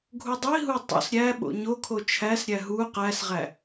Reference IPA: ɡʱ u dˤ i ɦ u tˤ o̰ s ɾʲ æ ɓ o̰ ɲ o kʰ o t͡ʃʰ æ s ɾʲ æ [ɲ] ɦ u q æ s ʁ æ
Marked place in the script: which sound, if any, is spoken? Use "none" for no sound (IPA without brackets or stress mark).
none